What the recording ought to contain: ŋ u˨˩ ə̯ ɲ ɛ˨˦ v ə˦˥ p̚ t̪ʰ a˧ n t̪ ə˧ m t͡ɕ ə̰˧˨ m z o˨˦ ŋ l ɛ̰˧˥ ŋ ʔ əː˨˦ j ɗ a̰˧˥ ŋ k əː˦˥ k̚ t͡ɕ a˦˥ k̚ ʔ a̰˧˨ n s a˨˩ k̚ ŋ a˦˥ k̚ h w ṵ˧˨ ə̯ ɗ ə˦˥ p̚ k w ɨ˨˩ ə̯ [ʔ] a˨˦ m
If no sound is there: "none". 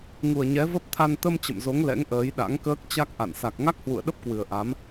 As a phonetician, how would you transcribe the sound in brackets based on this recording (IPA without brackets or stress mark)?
ʔ